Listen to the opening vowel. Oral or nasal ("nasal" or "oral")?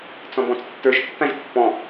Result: nasal